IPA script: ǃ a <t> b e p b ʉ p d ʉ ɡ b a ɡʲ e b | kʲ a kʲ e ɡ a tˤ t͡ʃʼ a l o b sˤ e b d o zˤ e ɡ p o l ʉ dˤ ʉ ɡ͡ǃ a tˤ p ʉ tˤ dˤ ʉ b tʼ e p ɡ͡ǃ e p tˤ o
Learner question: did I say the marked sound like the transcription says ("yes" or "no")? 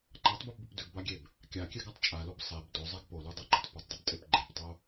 no